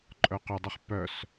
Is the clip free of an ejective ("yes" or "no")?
no